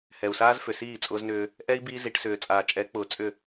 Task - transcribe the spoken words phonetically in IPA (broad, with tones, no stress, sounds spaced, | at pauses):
h ɛ˨ u̯ s aː˦ z f ʏ˨ s iː˦˨ t͡sʼ ʊː˦ z n ʏː˦ | ʔ ɛ˦ i̯ b iː˦ z i˨˦ ʈ s ʏː˨ t͡sʼ aː˨ t͡ʃʼ ɛ˨˦ k͡p ʊː˨ t͡sʼ ʏ˦˨